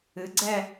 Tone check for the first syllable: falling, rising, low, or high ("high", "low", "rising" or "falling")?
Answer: rising